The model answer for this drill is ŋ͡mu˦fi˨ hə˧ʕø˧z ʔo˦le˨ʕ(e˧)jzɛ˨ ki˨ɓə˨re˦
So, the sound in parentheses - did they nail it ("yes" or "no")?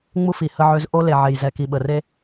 no